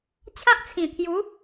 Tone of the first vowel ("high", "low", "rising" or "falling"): high